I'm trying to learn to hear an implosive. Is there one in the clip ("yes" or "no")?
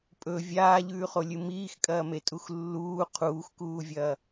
no